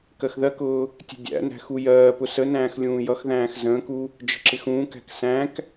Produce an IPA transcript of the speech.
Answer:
k ɜ x ð ɜ k ʊː | tʲ ə̤ dʲ æ̰ n æ̤ x u j ɜː p ʊ s ə n æ̃ː x lʲ ũː j ʌ x ð æ̃ː x z ə̃ː k u | d͡ʒ ə̤ ǁ ɪ x ũː k æ̤ k s æ̃ k

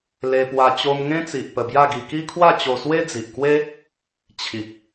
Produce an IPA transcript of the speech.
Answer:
l e˧ p w a˧ t͡ɕ o˧ m ŋ ẽ˦ t͡s i˨ ʔ p ə˧ b j a˥˧ ɡ i˧ k i˦ kʰ w a˥˧ t͡ɕ o˧ s w e˦ d͡z i˨ ʔ k w e˦ | t͡ɕʰ i˨ k̚

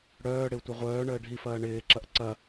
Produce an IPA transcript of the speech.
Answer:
ɽ œː ɽ ɪ u̯ tʷ œ ʁʷ œː ɳ əː ɖʱ i f ɐː ɳ ɪː ǁ ɐ ʔ ǀ ɐ

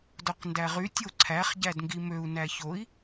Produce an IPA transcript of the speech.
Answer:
d o q n d æ ʁ y tʲ o ǀʰ æ χ ɟ æ d ŋ ɡ i m ø u̯ n æ ç o i̯

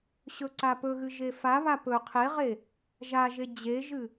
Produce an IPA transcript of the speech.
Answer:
ɕ ɵ ǀ a p ɵ ɣ ɨ ʒ e f a β a p ɵ qʰ e ʁ e | ʒ a ʒ e d͡ʑ e ʒ ɨ

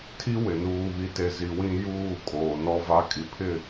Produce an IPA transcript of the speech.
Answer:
tʰ i˦ w ɪ˨ n uː˨ β i˨ t e˨ z i˨ w ĩ˦ j uː˦˨ kʼ oː˨ n ɔ˦ v a˦ kʼ i˨ pʰ ɪ˦˨

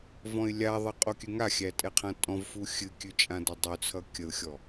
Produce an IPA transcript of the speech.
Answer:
v ɔ̃ ɪ̯ lʲ a ðˤ ʌ qʼ o kʲ ʉ ŋ a xʲ æ tʼ ɛ qʰ ã tʼ ɔ̃ v f u xʲ ɨ kʲ ʉ t͡ʃʼ ã d ʌ dˤ ʉ t͡sʰ ʌ kʲ ə ʊ̯ xʲ ɔ

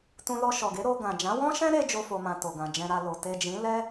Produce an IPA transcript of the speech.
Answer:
t ũ˧ l ɔ˧ ʃ ɔ˨ ɡ e˨˦ ɾ o˧ ɡ ã˨ d͡ʒ ã˨˦ w ɔ̃˦ ʃ ɛ̃˦ ɾ e˧ d͡ʒ o˦ f o˧ m ã˧ t o˨ ɡ ã˨ d͡ʒ ɛ̃˧ ɾ a˧ l o˨ t e˨ d͡ʒ ĩ˨˦ l ɛ˦

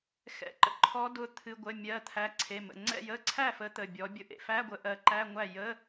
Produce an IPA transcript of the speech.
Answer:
x ɛ̰˩˧˩ ǃ ə̰˨˦ ǃʰ ɔ˨˦ d ʊ˩˧˩ t̪ʰ ɨ˩˧˩ ɡʷ ə˩˧˩ mʲ ɜ˩˧˩ t̪ʰ æ˩˧˩ ǀʰ e˩˧˩ m ə̰˩˧˩ ŋ͡ǀ ɛ̰˥˩ j ə˧˥˧ ǀʰ æ˥˩ f ə˨˦ t̪ ə˩˧˩ bʲ ɔ˨˦ bʲ ʊ˥˩ ʔ ḛ˥˩ f æ˧˥˧ ɡʷ ə˨˦ ʔ ɜ˨˦ ǃ æ˧˥˧ ŋʷ æ˥˩ j ə˧˥˧

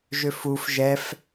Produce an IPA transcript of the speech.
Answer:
ʒ ø f u f ʒ ɛ f

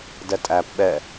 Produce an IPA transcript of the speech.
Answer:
d ɛ tʼ æ p ɓ ɛ

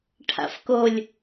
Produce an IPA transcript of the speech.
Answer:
ʈʰ a̰ f k o lʲ

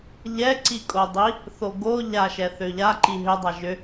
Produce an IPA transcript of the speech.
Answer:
ʎ ɛ ǀ i kʼ o dˤ i | θ o ɡ o ʎ a ʃ ɛ θ ø ʎ a ǃ i ɦ ʏ dˤ a ʒ ʏ

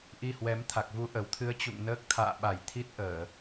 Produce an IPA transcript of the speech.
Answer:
ʔ i˧ h w ɛ˨˦ m t̪ʰ a˨˩ k̚ v u˧ ʔ ə˨˩ w t̪ʰ ɨ˧ ə̯ t͡ɕ ṵ˧˨ ŋ n əː˦˥ k̚ t̪ʰ a̰ː˧˨ ɓ a˨˩ j t̪ʰ i˦˥ t̚ ʔ əː˧˩˨

